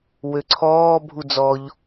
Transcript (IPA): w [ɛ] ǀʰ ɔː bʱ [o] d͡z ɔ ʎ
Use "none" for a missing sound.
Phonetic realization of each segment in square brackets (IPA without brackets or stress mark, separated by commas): ø, u